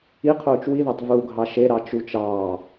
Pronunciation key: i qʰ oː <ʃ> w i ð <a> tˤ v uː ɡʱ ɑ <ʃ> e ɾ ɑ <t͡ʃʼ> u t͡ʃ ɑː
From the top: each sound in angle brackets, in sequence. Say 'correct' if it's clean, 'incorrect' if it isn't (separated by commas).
incorrect, incorrect, correct, incorrect